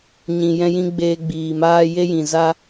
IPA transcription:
ɲ ĩ˨ j ɛ̃˧ j ĩ˧ ɡ͡b eː˧ ɡ͡b iː˨ m aː˦ j e˦ j ĩ˨ z a˦

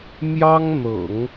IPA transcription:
m j ɑ˥ ŋ n̪ ɤ̰˨˩˦ ŋ

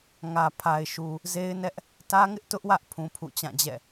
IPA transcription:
ŋ ä˨ pʰ a˨ ɪ̯ ʃ u˨ | z e˦ ɪ̯ n ɛ˦ ʔ | t ä˦ ŋ ɪ˦ ʔ t ʊ˦ ʔ w ä˦ ʔ pʰ ũ˦ pʰ ṵ˦˨ t͡ɕ ã˦˨ d͡ʑ ɛ̰˦˨

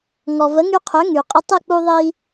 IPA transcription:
ŋ ɔ˩ v ə˩˥ ŋ y˧ qʰ ø˩˥ ŋ y˩ qʼ ə˧ tˤ ə˥˩ k͡p u˧ ðˤ i˧

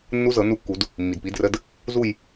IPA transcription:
nː u˦˥ z ɤ˨˩˦ n u˦˨ kː u˨˩˦ d | mː i˩ d p i˩˥ d r ə˧˥˧ d | z u˦˨ j

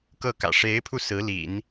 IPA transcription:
k ɤ˥˩ k ä̰˨˩ ʂ e˧˥ ɪ̯ pʰ u˧ s ɹ̩˧˥ l ḭ˨˩˦ n

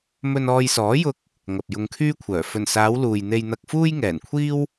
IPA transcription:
m ɵ˧ n ɔː˧ j s ɔː˨˥ j ʊ˧ k̚ | ŋ ɐ˨ p̚ j ʊ˧ ŋ kʰ yː˥ kʷʰ œː˨˩ f ɵ˨˩ n s aː˨˧ w l uː˨ j n̪ e˧ j n̪ ɐ˧ k̚ f uː˥ j ŋ ɛː˨˩ n kʷʰ iː˥ w

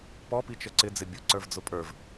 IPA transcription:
p ɔ p i t͡ʃ ə ǀ ɪ d͡z ɪ bʲ ʊ ǀ ə˞ v d͡z ʊ pʼ ə˞ v

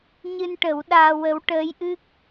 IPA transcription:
ɲ ɨ˧ n ʈ ə˨˩˦ w ɗ aː˧ w ə˧˥ w ʈ əː˧˥ j ʔ ɨ˦˥ k̚

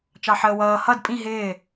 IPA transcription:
t͡ʃ ɑ ħ əː w ʌː h ʌ d pʼ ĩ ɦ ɪː

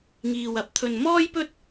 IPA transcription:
ŋ iː˨ w ɐ˨˥ p̚ t̪ʰ ɵ˨ n m ɔː˥ j p ɵ˥ t̚

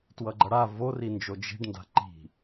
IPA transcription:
t w ʌ ɡ͡ǃ ʌ ɽ a v o r i n d͡ʒ o d͡ʒ i̤ ɖ n d a̤ ǃ i̤

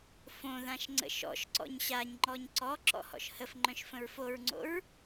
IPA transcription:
f õ ð ã ʃ ŋ͡ǀ ə̰ ʃ ɔ̰ ʃ ǀ ɔ̰ ɲ ɕ a ɲ ŋ͡ǃ ɔ ɲ ǀ ɔ ǁ ɔ̰ h ɔ̰ ʃ h ə f ŋ͡ǃ œ̃ ʃ f ə̃ ɹ f o ɹ ŋ͡ǀ o̰ ɹ

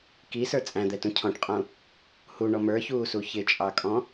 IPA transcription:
k i s ə˞ t͡sʼ æ̃ d̪ ɛ t ũ cʰ ɔ̃ ʈ qʼ ũ | h u ɳ ɔ m ə˞ ç uː s u ç ɪ t͡ʃʼ ɑ kʼ ɔ̃

